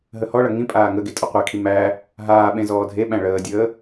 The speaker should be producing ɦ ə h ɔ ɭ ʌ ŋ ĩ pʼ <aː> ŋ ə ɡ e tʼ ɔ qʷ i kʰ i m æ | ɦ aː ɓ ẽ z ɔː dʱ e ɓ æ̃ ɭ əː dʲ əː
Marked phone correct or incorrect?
correct